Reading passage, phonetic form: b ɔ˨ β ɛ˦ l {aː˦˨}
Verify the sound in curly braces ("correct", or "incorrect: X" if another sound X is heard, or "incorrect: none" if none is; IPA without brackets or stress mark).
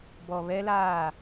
correct